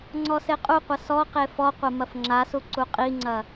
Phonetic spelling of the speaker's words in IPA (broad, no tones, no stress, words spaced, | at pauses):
ŋ͡ǀɔseqʼuqʷɐ sɔqe fɔqʷɐ mɐfŋ͡ǁasu ǀuqʼiŋ͡ǀɐ